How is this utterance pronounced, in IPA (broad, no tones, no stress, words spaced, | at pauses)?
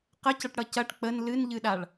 qəcʌʈɽʌ cɐʈ k͡pən lɨnʎɨɗaɭ